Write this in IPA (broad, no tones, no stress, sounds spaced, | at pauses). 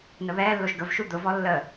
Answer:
n ə β ɛː lː o ʒ ɡ ə v ʃ u d̪ ʊ v ɔ lː əː